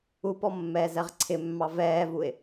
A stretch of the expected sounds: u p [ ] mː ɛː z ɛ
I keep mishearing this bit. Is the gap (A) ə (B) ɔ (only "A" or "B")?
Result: B